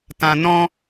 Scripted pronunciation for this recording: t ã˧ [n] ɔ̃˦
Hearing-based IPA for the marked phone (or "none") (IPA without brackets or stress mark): n